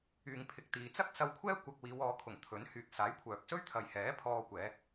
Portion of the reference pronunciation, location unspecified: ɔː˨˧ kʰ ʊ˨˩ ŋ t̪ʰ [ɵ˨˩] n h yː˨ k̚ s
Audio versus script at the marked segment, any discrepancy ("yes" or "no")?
yes